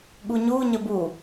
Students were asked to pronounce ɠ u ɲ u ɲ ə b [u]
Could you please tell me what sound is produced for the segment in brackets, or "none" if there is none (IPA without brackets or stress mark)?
u